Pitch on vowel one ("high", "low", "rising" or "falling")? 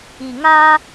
low